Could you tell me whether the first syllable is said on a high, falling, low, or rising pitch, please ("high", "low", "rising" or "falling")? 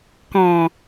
low